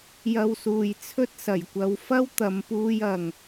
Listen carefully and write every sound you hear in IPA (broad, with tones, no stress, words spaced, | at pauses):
jɐ˥wsuː˧j t͡sʰɵ˥t̚sɐ˨˩jkʷɐ˨˧w fɐ˥wt̪ɐ˨˧mpuː˧jɐ˨ŋ